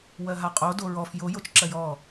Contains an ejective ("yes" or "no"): yes